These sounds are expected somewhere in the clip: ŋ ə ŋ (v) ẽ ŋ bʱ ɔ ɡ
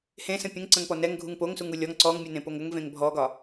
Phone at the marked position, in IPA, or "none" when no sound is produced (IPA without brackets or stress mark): v